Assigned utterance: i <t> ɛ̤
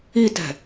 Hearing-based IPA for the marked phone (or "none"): t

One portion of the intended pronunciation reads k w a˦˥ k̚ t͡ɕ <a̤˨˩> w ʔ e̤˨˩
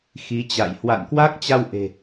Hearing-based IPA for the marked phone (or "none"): a˧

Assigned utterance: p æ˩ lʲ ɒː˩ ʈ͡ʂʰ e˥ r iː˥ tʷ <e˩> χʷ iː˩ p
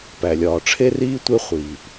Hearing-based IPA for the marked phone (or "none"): e˥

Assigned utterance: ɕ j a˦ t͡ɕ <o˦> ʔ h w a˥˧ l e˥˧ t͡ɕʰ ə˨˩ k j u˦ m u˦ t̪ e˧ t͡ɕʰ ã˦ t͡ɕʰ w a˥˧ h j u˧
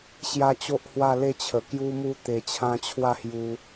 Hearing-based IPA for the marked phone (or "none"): o˦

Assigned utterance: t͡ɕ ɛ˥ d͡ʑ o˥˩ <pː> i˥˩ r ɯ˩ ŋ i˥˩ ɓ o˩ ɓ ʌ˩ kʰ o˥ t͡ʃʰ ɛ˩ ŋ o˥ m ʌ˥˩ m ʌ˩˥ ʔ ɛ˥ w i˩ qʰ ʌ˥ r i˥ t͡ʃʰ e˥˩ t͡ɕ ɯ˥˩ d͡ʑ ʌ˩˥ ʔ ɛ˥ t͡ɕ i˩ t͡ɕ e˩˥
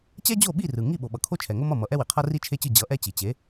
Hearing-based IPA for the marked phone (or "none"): ɓ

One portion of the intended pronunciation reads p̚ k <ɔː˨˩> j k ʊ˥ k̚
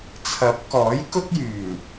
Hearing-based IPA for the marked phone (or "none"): ɔː˨˥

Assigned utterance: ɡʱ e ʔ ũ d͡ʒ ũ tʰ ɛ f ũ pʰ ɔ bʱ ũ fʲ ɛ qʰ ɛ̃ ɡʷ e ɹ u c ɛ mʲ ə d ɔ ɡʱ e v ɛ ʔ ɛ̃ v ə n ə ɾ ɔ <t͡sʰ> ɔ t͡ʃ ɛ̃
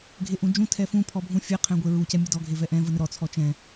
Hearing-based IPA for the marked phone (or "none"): t͡sʰ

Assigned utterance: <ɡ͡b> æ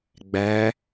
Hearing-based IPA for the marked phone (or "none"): ɡ͡b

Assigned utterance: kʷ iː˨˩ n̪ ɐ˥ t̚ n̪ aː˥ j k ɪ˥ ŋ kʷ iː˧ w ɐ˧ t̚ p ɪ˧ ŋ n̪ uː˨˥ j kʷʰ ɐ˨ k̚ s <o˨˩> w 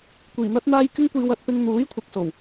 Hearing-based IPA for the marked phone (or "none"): o˨˩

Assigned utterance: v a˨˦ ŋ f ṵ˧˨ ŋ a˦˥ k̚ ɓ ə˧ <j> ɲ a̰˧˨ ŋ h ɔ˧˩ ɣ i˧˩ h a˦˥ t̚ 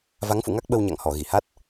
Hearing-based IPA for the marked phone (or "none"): w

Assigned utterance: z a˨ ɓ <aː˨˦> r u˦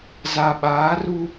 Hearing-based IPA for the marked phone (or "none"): aː˨˦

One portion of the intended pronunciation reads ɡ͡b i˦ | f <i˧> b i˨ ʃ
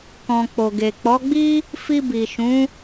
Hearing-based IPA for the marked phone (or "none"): i˧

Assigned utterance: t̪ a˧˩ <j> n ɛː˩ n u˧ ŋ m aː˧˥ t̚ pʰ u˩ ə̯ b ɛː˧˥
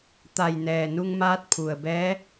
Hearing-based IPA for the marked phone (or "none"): j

